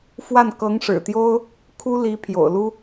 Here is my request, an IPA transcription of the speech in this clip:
f w a˥˩ n k ɤ˧˥ ŋ ʂ ɻ̩˨˩ t̪ j o˥ ʊ̯ | kʰ u˥ l i˧˥ pʰ j o̰˨˩ ʊ̯ l u˥

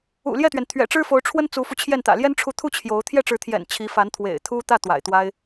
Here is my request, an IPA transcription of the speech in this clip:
ṵ˨˩ l j ɛ˥˩ t̪ ɥ ɛ˩ n t̪ʰ ɥ ɛ̰˨˩ ʈ͡ʂ ɻ̩˥ f o˧˥ ʊ̯ ʈ͡ʂʰ w ə˥ n t͡s u˧˥ f u˧ t͡ɕʰ j ɛ˥˩ n t̪ ä̰˨˩ l j ɛ˥ n ʈ͡ʂʰ u˧˥ t̪ʰ u˥˩ t͡ɕʰ j o˧˥ ʊ̯ t̪ʰ j ɛ˥˩ ʈ͡ʂ ɻ̩˧˥ t̪ʰ j ɛ̰˨˩ n t͡ɕʰ i˧˥ f a˧˥ n t̪ʰ w ḛ˨˩ ɪ̯ t̪ʰ u˥ t̪ ä˥˩ t̪ w a̰˨˩ ɪ̯ t̪ w a˥ ɪ̯

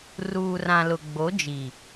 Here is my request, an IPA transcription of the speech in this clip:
r uː˨ r ã˨ l ʊ˨ ɡ͡b o˨˦ d͡ʒ i˨

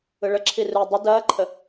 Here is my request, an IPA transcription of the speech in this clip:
ɯ ɭ ə ǁʰ i r ɯ dˤ ə d ɐː ǃʰ ə

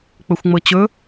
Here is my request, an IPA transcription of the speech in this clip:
k͡p ɵ xʷ ŋ͡m ɤ t͡ɕ ɵ

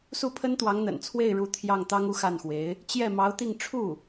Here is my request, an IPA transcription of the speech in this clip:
s u˥˩ pʰ ə˥ n t̪ w ɑ˧˥ ŋ n̪ ə̰˨˩ n t͡sʰ w e˥˩ ɪ̯ ɻ u˧˥ t̪ʰ j ɑ˥˩ ŋ t̪ ɑ˥ ŋ u˥˧ x a˥˩ n x w e˧˥ ɪ̯ | t͡ɕ j ɛ˥˩ m ɑ˧˥ ʊ̯ t̪ i˥˧ ŋ ʈ͡ʂʰ u˥˩

